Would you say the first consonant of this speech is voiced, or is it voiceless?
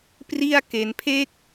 voiceless